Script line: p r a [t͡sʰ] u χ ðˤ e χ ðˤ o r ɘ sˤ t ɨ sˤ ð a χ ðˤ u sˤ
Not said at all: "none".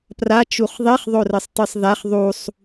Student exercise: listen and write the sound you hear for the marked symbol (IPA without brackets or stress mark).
t͡ʃ